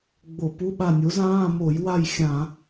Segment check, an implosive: present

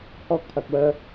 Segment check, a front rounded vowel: present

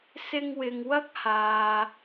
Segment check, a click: absent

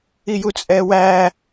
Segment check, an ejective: present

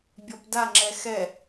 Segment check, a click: present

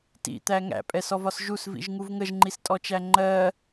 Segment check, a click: present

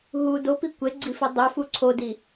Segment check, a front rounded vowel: present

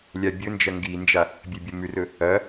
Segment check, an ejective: absent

